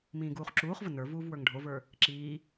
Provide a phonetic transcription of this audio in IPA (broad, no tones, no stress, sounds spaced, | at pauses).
m ĩː ɡ uː χ ǁ uː χ v ə n ə˞ v uː v w ə˞ ŋ ɖʱ o v ə˞ | ǁ iː